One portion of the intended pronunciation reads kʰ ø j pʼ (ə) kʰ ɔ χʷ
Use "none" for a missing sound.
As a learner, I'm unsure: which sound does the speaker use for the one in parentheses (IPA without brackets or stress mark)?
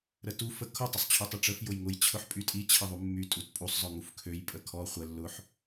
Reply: ə